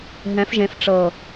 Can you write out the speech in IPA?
ɦ ɛ̃˨˦ f ʒ ẽ˨˦ f ʈ͡ʂ ɤ˨˩

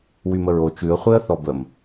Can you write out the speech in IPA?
w y m ə ɹ o t͡ʃ ʉ ə̯ χʷ e ə̯ θ ɔ b ə m

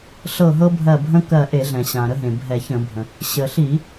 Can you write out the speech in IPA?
ɬ ɤ˧˩ ɦ ɤ˦ bʱ ɜ˧˩ bʱ ə̃˦ k ɜ˧˩ ʔ e˧˩˧ ɮ ɛ̃˩ ɕ ã˩ ɾ ə˦ ɦ ẽ˩ bʱ ɛ˧˩˧ ç ə̃˧˩˧ bʱ ə̃˩ | ɕ ə˩ ɬ i˧˩˧

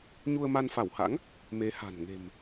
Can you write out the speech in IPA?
ɲ u˧ ə̯ m a˧ n f a˧˩ w h a̰˧˥ ŋ | m e˨˦ h a̤˨˩ n ŋ e̤˨˩ m

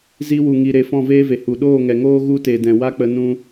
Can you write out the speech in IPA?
z i˧ w u˨ ŋ i˨ ɾ e˧ f ɔ̃˦˨ v eː˦ v e˨ h u˨ ɗ oː˦˨ ŋ ɛ˨ ŋ oː˦ ɣ u˦ t e˨ d ɛ̃˨ w a˦ k͡p ə˧ n ũ˧

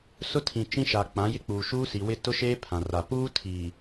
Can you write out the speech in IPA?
s ʊ˦ tʰ ĩ˨ t͡ʃ ĩ˦ ʃ a˨ k͡p ã˨˦ j ɪ˦ k͡p uː˨ ʃ uː˦ s i˨ w ɪ˦ t ʊ˦ ʃ eː˦ pʰ ã˨ r a˨ p uː˦ tʰ iː˨

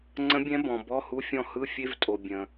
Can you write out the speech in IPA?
ŋ͡ǀ ə̃˧˥ bʲ ɛ̃˧˥ b ɔ̃˨ b ɔ˧˥˧ h u˧˥˧ fʲ ɔ̃˥˩ h ɯ˧˥˧ fʲ e˧˥˧ v tʼ o˨ bʲ ə̃˨

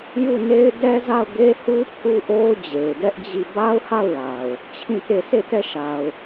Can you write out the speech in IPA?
j u˦˨ n e˦ ɪ̯ d ɛ˦ z a˦˨ ʊ̯ ɡ e˦ h u˦ pʰ u˦ ʔ o˦ ʊ̯ d͡ʑ e˨ ɪ̯ d ɛ˦ ʔ d͡ʑ i˦˨ b a˦ ʊ̯ h a˦˨ ʊ̯ l a˨ ʊ̯ | t͡ɕʰ ĩ˦˨ t e˦˨ sʰ e˦˨ t ɛ˦˨ ʃ a˨ ʊ̯

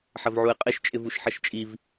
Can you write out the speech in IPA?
ħ ɐ v ʕ u e̯ qʼ ɪ ʃ t͡ʃʼ ɪ v u ʃ ħ ɐ ʃ t͡ʃʼ i v

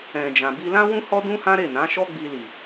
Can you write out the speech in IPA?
ɛ̃˨ d͡ʒ ã˨ b i˧ l ã˦ w ũ˦ h ɔ˦ d ũ˦ h ã˦ ɾ e˦˨ n ã˨˦ ʃ ɔ˦ ɡ͡b i˧ l i˨

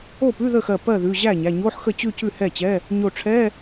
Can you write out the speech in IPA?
o˥˩ p ʉ˧˥˧ ð ə˥˩ x ɜ˧˩ p ɜ˥˩ ð ʉ˩˧˩ ʑ æ˥˩ ɲ æ˩˧˩ ɲ o˧˥˧ ħ x ə˥˩ t͡ɕ ʉ˥˧ c ʉ˥˩ h ɛ˥˩ t͡ɕ ɛ˧˥˧ | ɲ o˧˩ ʈ͡ʂʰ ɛ˧˥˧

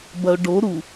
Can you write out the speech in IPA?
b ɐ ʊ̯ ɖ o ɾ u

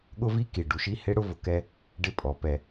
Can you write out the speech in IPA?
ɠ ʊ˦ v i˦ k i˨ ɖ u˨ ʃ i˦ h e˦ ɽ ʊ˦ v ʊ˧ k ɛ˦ | ɖ ɪ˦˨ pʼ ɔ˨˦ p ɛ˧

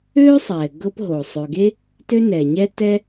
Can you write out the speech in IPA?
øː˥ sˤ ɛː˩ ɡ ɤ˦ p ɦ o˩ sˤ ø˨ ɡ e˥ | t ø˦ n ɛː˩ ɲ ɛ˦ t ɛː˦

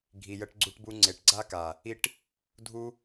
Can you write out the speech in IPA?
ɡʱ i˨ j ə˧ ʈ ɡ͡ǀ u˧ ʈ b u˧ ŋ͡ǀ e˨ ʈ ɡ͡ǀ a˦ k a˨ | i˦ ʈ | dʱ u˦

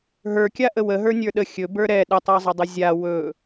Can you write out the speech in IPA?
ɦ ə˞ kʲ a ʔ ə w ə ɦ ə˞ nʲ ə˞ ɗ ə xʲ ɵ b ə˞ ɾ ɛ ɗ ə tˤ ə˞ zˤ ɵ dˤ ə zʲ a w ɵ

